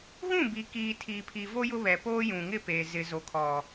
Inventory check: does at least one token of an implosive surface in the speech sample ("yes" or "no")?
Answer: no